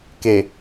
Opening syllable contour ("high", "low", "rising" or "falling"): low